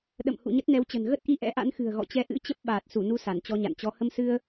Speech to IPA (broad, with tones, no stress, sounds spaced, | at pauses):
ɗ ə̰˧˨ m h ṵ˧˨ ɲ ə˦˥ t̚ n ɛ˨˦ w t͡ɕ ə̤˨˩ n ɣ ə˦˥ t̚ ʔ i˧ ʔ ɛ̰˧˥ ʔ a̰˧˥ n x ɨ̤˨˩ ə̯ ɣ ɔ̰˧˨ t͡ɕ ɛ˨˦ ʔ ɨ̰˧˥ t͡ɕ ə˦˥ p̚ ɓ aː˨˩ t̚ s u˧˩ n u˧ s a˧˩ n t͡ɕ ɔ˧ ɲ a̰˧˨ n t͡ɕ ɔ˨˦ h ə˧ m s ɨ˧ ə̯